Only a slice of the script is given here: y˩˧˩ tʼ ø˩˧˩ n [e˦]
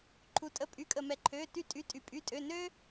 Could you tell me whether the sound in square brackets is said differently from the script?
yes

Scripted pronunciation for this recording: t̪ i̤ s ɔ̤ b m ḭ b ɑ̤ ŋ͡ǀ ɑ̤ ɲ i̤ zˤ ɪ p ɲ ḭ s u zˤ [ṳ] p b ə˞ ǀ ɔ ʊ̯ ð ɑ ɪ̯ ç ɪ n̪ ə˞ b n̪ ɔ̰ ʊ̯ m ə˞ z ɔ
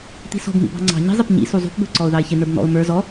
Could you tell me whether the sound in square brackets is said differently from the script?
no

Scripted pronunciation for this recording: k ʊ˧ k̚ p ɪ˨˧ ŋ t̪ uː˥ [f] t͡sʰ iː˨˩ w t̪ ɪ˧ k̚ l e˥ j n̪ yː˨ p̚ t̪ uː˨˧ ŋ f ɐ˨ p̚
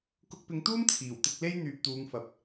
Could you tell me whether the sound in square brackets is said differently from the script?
yes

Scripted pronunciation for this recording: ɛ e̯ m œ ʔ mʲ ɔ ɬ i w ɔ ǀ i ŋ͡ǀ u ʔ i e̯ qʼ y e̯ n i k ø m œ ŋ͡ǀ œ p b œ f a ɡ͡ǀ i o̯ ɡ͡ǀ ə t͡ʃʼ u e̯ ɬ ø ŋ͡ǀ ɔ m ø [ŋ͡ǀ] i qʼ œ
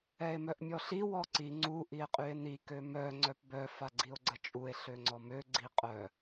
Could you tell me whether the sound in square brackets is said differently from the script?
yes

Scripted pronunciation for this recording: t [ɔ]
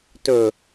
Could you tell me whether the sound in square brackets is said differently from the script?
yes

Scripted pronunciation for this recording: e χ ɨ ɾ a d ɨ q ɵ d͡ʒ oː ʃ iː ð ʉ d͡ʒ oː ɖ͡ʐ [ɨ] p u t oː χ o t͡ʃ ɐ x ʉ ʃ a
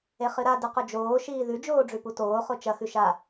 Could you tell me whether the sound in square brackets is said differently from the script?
yes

